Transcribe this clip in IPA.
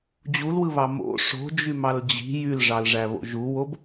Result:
d͡ʑ u l w ɯ β ɑ m o̰ ʂ o̤ d͡ʒ y m ɑ l d͡ʑ i̤ j y l ʐ ɑ l ʐ æ β o̰ ʒ u w o b

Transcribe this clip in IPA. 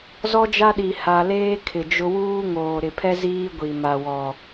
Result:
z ɔ˦ d͡ʒ a˦ ɗ i˨ h a˨ l eː˦ kʰ ɪ˨ d͡ʒ ʊ˦ w uː˦ ŋ oː˨ ɾ ɪ˨ pʰ ɛ˦ z iː˦ ɡʷ i˨ m a˨ w ɔ˨

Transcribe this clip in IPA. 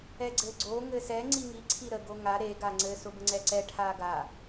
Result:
ɛ ɡ͡ǀ ɘ ɡ͡ǀ o ŋ ɘ s ɛ ŋ͡ǀ i ŋ i ǀʰ i ɾ ə ɡ o ŋ a ɾ e ɡ a ŋ͡ǀ ɘ s ʊ b ə ŋ͡ǀ ɛ ǀ ɛ ʈʰ a ɡ a

